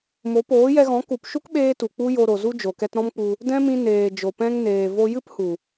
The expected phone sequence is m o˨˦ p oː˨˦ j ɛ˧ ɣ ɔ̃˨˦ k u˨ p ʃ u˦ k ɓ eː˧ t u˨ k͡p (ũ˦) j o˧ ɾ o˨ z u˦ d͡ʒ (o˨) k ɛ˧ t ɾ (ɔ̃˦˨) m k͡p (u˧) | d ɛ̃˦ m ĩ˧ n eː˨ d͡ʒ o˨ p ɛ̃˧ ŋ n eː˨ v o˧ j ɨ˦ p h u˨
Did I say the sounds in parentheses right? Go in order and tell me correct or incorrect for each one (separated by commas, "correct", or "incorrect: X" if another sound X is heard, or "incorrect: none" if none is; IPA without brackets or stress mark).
incorrect: u˦, correct, incorrect: ɔ̃˦, correct